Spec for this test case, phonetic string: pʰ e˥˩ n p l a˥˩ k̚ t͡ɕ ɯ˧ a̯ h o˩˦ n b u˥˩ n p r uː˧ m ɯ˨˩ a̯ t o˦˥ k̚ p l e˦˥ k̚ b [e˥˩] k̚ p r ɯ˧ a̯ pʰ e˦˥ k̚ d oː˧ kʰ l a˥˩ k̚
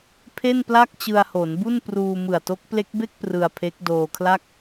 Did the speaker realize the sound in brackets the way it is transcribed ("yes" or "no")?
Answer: yes